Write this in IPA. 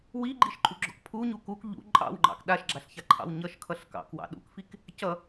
w i ɡ͡ǃ i ʃ ǃʼ u ɡ͡ǁ ɔ̰ k pʰ u ɲ u k u k ʎ ṵ ǃʼ ɑ̰ w ŋ͡ǃ ɑ̰ k ɗ a ʃ ɡ͡ǁ a ɬ ç a ǃʰ ɑ̰ w ɲ ʌ ʃ kʰ ʌ ɬ k ɑ̰ k w ɑ̰ ɗ ṵ k f i k | c ʌ

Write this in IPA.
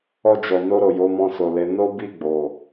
ɔ˧ d͡ʒ ɔ˨ n o˧ ɾ o˨ j o˨˦ m ɔ̃˧ s o˨ l e˨˦ n o˦ b i˦˨ ɡ͡b o˨

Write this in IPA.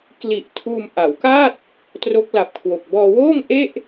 k l i˨˩ ʔ tʰ uː˧ m ʔ a˩˦ w k a˥˩ t̚ | t r o˦˥ k̚ l a˨˩ p̚ kʰ w o˨˩ k̚ b ɔː˧ w oː˥˩ ŋ ʔ e˥˩ ʔ

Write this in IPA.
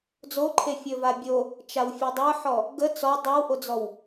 d͡z o ǃʰ e fʲ ɵ v a bʲ o | t͡ʃ a w fʲ e dˤ ə˞ ħ ɔ | ɡ ə t͡s ɔ dˤ ə˞ w ʔ o d͡z ɔ w

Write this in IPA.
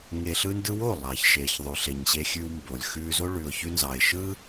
ŋ e˨ ɬ ɯ˧ n d ɯ˧ w o˦˨ lˠ ɑ˨ ç ʃ eː˨ ç ðˤ ʉ˨ ɬ e˨ ɲ ɕ e˧ xʲ ʉ˧ w m b o˨ lʲ x ʉː˧ z o˦ ɭ ʉ˨ ʊ̯ ç ʉ˧ n z ɑ˨ ɪ̯ ʃ ɯ˦

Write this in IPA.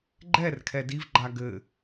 ɡ͡ǃ ɛ r kʰ ɛ d i v ɡ͡ǃ a ɡ ɘ

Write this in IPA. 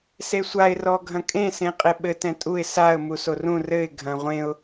s e sʷ a ɪ̯ r ɔ ɡʱ ɐ̃ kʼ ẽ s ẽ qʼ e ɓ ɘ t ɛ̃ tʼ u ɪ̯ s a ə̯ m u s o r ũ r ɘ ɪ̯ ɡʱ ɐ̃ ʁʷ ẽ ʊ̯

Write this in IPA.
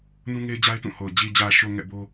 n ũ˦ ŋ e˦ ɪ̯ d͡ʑ a˦ ɪ̯ t ũ˦˨ h o˨ ʊ̯ d͡ʑ i˨ d͡ʑ ä˨ ʃ o˨ ŋ ɛ̰˦˨ b o˦

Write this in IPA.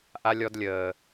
ʔ a˧ lʲ ɔ˧ d lʲ əː˨

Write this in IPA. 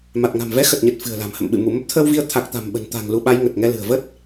m a˨˩ t̚ ŋ a̤˨˩ m v ɛ˨˦ x ə˨˩ t̚ ɲ ə˨˩ t̚ f ɨ̤˨˩ ə̯ l a̤˨˩ m h ə̰˧˨ m ɓ ɨ̰˧˨ m u˧˩ m ə˦˥ p̚ t̪ʰ əː˧ w v i˧ ə̯ t̪ʰ a˨˩ k̚ t̪ a̤˨˩ m ɓ ə̤˨˩ n t̪ a̤˨˩ ŋ l u˧ ɓ a˨˦ j ŋ ə˨˩ t̚ ŋ ɛ˧ l ɨ̤˨˩ ə̯ v ə˦˥ t̚

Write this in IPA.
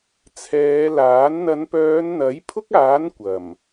t͡sʰ ɛː˨˧ l aː˨˥ n n̪ ɐ˨˧ n p œː˨˧ n n̪ ɐ˨˥ j pʰ ʊ˥ k̚ aː˨˥ n kʷ ɐ˨˩ m

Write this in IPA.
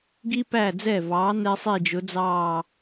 ɡ i˧ p æ˧˩ d͡z ɛ˧˩ v ɑː˩˧ n ɛ˧ sˤ i˧˩ d͡ʒ ʊ˩˧ d͡z ɑː˧˩

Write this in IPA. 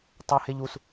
tˤ ə h e ʎ u s

